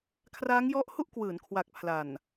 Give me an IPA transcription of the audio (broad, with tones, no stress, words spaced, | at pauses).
kʰraː˦˥ŋjɔ˦˥ʔhu˥˩ʔ kwɯː˩˦nkʰwa˨˩k̚ pʰla˨˩n